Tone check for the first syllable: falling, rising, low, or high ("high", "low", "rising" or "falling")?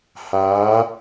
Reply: rising